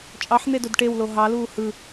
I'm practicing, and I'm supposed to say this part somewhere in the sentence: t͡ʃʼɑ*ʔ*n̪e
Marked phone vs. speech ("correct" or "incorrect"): incorrect